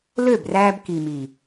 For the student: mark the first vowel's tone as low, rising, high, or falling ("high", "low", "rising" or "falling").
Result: falling